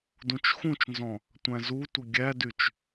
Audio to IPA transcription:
d ũ t͡ʃ x ũ t͡ʃ n z ɔ̃ | tʷ æ̃ z u tʷ ə ɡʲ æ d y t͡ʃ

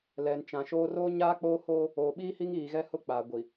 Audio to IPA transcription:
l ɛ˨ n t͡ʃ ã˨ ʃ oː˦ r oː˦ ɲ aː˦ k͡p oː˦ h oː˦ | oː˨ ɓ iː˦ h i˦ ŋ iː˨ ɣ ɛ˦ h ʊ˦ k͡p aː˨ ɡʷ i˨

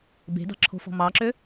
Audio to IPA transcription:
b e̤ d ɑ̤ ǁʰ o̤ f ɔ̤ m ɑ ǁ ø

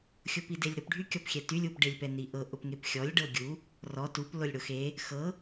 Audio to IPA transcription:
xʲ ʊ p i d e lʲ ɾ ʊ p ɖʱ y kʲ ɔ p xʲ ɛ t y lʲ u p ɖ e lʲ p ɛ n i ʔ ɤ ʔ ʊ p ŋ e p xʲ ɔ lʲ ɖ ɤ ɡʲ u | r ɔ t u p l ʊ lʲ ɽ ʊ x e | x ɤ

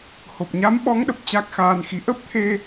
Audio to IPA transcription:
h o˨˩ p̚ ɲ a˨˦ m ɓ ɔ˨˦ ŋ ɗ ə˨˩ p̚ t͡ɕ a˦˥ k̚ x aː˧ n x i˨˦ ʔ ə˦˥ p̚ t̪ʰ e˧

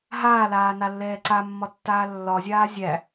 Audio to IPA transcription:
ɦ aː l aː n a lː ɛː ǀ a mː ɒ tː aː lː ɒ zʲ aː zʲ æ

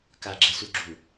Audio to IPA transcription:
k a ɡ͡ǁ ɛ s u ɡ͡ǁ u

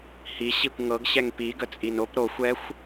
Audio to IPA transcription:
h i ɕ i kʷ ŋ ɤ ɡ ɕ ɛ ŋ p i ɡ ə t͡sʼ i n o p ɾ o xʷ ɛ xʷ

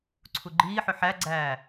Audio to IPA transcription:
ǀʰ u ɡ͡ǃ iː ħ ʏ ħ æ ɡ͡ǀ æː

